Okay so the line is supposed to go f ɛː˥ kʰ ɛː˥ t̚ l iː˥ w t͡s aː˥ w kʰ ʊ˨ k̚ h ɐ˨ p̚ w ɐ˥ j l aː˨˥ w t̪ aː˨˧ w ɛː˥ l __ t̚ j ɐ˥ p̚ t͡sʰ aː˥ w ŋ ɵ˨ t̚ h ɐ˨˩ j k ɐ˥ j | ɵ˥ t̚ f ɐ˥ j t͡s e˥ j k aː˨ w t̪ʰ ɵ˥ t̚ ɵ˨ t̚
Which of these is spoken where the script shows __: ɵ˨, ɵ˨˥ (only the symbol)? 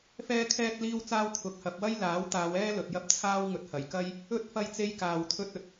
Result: ɵ˨